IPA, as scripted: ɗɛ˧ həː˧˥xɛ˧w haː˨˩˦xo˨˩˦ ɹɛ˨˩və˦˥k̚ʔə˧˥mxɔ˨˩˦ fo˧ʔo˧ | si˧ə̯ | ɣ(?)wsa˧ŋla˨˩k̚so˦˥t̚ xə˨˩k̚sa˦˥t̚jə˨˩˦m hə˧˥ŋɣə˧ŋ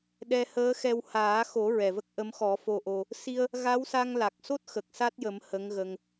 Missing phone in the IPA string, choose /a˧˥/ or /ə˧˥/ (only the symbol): a˧˥